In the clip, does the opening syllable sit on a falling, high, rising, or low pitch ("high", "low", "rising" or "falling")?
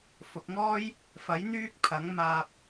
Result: low